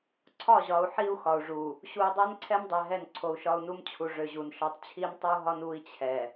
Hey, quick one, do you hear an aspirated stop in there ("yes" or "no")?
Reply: yes